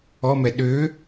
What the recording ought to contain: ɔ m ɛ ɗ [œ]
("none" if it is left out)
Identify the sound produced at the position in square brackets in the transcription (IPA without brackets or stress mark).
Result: ø